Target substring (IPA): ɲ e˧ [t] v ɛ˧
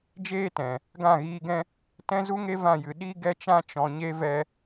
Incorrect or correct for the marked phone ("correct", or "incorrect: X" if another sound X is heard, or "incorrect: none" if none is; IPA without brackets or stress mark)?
incorrect: none